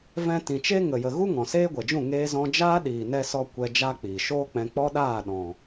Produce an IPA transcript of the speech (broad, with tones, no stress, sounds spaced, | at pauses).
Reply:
v ɛ̃˧ t ĩ˨ t͡ʃ e˦ ŋ ə˨ j ə˨ ɣ u˦ ŋ ɔ̃˨ s eː˦ ɡʷ ɛ˨ d͡ʒ ũ˦˨ ŋ eː˦ z ɔ̃˦ d͡ʒ aː˦ ɗ iː˨ n ɛ˧ s ɔ˧ kʷ ɛ˧ d͡ʒ a˦ k͡p iː˨ ʃ oː˦ k͡p ɛ̃˧ k͡p ɔ˦ ɗ aː˦˨ ɗ ɔ̃˨